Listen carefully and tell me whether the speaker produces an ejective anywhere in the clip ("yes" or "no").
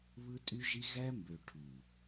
yes